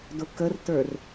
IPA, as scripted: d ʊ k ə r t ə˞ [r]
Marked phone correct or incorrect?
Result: correct